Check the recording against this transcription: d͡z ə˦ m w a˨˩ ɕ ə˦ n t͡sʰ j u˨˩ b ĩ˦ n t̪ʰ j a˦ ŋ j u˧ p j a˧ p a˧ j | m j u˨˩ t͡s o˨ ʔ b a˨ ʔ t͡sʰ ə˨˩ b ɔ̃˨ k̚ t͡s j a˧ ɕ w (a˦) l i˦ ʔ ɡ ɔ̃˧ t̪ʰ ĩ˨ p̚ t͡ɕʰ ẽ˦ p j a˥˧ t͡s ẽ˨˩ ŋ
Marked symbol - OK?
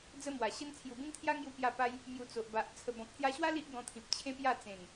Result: yes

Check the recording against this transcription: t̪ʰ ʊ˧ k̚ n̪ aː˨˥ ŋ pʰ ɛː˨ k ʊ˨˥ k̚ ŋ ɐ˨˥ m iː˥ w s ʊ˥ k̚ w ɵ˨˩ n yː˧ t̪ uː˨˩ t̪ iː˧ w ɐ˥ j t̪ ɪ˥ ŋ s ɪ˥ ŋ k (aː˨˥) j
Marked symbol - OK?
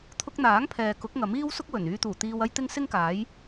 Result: yes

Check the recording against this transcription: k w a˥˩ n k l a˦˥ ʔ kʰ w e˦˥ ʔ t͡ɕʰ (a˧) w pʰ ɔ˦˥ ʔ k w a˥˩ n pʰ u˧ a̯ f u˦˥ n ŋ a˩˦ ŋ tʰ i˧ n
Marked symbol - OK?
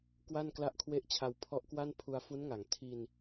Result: yes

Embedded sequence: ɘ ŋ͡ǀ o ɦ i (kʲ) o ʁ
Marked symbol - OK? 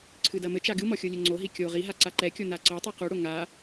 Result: yes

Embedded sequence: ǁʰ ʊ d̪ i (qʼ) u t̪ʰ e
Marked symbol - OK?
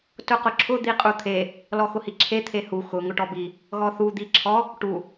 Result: yes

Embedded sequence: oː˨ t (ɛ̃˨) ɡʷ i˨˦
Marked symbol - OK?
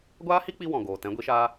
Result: no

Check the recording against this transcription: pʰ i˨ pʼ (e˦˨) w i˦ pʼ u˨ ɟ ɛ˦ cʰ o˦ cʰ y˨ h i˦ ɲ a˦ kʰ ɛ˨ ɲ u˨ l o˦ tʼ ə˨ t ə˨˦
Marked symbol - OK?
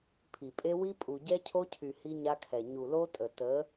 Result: no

